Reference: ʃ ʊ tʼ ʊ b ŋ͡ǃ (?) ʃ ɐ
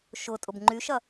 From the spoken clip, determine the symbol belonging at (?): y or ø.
y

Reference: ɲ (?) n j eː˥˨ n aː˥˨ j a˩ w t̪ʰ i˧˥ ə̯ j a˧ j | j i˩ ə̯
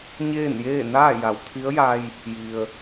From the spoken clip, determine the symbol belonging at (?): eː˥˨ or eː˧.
eː˥˨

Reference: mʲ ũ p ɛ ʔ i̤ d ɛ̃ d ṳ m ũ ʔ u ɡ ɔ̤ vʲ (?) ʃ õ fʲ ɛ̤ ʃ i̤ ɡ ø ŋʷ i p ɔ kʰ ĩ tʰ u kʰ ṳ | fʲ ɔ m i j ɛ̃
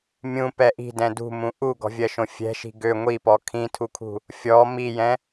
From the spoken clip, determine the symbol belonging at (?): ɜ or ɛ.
ɜ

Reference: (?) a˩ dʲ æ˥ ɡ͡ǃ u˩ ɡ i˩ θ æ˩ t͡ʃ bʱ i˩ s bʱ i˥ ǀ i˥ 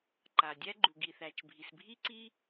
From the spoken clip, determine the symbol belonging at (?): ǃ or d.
ǃ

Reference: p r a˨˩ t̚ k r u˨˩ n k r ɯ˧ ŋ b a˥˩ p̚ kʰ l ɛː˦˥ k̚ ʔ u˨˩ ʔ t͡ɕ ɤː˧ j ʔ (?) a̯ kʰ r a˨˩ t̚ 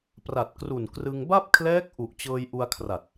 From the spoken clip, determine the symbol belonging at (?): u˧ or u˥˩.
u˧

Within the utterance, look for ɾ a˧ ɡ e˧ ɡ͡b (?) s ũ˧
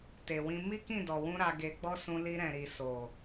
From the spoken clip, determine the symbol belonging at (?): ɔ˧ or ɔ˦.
ɔ˦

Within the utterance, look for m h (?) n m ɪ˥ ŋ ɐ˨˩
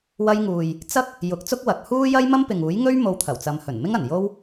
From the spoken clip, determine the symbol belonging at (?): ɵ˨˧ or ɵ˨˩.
ɵ˨˩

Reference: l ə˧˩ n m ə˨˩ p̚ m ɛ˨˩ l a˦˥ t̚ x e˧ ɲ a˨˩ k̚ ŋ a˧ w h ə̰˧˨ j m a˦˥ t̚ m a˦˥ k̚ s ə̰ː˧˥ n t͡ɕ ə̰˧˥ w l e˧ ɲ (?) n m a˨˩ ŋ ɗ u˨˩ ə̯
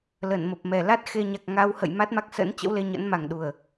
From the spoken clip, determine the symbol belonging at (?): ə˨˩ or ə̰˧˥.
ə̰˧˥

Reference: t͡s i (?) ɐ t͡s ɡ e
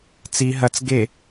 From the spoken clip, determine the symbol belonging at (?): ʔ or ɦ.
ɦ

